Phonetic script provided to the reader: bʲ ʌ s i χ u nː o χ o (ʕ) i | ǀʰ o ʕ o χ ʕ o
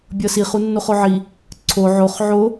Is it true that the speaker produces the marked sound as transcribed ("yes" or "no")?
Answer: yes